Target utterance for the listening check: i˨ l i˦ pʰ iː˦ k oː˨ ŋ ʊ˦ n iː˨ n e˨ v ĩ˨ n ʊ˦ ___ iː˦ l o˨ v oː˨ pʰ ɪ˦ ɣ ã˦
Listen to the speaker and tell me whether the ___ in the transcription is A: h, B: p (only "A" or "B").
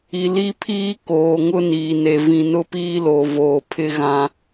B